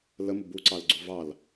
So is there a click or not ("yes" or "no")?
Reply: yes